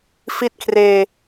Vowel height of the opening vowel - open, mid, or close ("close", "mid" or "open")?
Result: close